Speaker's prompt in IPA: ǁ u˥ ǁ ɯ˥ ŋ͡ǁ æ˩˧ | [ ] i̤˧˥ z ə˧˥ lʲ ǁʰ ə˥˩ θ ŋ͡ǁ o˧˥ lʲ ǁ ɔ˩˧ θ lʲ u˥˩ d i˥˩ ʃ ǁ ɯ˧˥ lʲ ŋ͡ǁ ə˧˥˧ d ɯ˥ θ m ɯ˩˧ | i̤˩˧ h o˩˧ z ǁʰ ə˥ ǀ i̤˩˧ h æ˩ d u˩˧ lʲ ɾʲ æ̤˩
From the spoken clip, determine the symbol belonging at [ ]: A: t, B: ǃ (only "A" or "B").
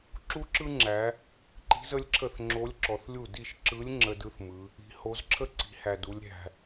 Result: B